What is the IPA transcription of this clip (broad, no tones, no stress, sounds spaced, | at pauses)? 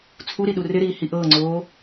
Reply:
t͡sʰ u ɾ i ɗ u r ɪ ɾ iː h i ʔ ɤː ŋ͡ǀ oː